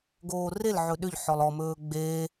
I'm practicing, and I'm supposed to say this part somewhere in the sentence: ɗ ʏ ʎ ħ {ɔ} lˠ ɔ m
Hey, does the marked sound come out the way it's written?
yes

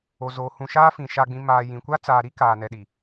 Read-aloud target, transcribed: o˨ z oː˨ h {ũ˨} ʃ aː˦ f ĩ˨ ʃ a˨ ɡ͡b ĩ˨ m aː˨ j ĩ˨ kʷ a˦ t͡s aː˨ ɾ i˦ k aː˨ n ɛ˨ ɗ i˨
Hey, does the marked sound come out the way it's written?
yes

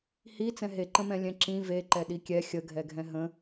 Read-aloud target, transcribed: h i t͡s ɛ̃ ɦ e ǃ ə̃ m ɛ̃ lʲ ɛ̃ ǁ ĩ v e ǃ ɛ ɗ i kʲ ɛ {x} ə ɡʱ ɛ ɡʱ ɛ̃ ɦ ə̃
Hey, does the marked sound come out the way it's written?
no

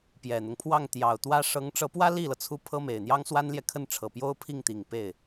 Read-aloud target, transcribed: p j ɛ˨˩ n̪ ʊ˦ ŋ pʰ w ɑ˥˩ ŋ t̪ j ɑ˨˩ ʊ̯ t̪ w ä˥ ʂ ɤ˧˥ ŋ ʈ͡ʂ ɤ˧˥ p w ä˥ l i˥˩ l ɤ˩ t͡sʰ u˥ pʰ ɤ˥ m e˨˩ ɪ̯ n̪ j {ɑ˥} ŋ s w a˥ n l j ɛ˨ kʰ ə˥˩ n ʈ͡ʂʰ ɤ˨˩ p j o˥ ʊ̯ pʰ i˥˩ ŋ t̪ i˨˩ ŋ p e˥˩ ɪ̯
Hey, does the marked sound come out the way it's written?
yes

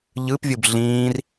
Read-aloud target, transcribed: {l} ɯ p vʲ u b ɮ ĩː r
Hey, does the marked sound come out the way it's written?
no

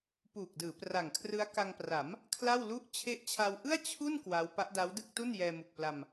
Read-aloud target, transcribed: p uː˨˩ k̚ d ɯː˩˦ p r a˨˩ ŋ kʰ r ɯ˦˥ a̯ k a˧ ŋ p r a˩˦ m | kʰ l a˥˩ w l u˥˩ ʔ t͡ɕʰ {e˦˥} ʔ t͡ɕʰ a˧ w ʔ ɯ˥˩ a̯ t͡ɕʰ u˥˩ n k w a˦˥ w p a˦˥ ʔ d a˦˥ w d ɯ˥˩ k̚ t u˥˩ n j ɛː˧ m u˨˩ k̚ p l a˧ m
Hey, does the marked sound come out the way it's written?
yes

